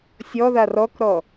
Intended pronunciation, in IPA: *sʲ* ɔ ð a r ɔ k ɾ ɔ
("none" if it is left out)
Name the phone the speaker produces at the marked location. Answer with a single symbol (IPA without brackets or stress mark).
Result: sʲ